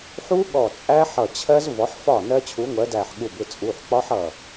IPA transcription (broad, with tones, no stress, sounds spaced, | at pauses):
ħ u˦˥ ɠ ɔ˧˩ t͡sʼ æ˦˥ ħ ʌ˧˩ t͡ɕʰ ɜ˦˥ z v ɔ˨˥ ħ f ɒ˥˩ n ɜ˦˥ t͡ɕʰ u˨˥ ŋʷ ɜ˨˥ d æ˧˩ ħ ɠ u˧˩ b ɪ˥˩ t͡sʼ u˩˧˩ ħ k͡p ɒ˦˥ ħ ʌ˧˩